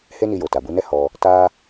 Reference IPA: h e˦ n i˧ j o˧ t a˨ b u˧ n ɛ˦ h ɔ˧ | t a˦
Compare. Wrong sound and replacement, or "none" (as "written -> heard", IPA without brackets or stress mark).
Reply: o˧ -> o˨